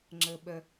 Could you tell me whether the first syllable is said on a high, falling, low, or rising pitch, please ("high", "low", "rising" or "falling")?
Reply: low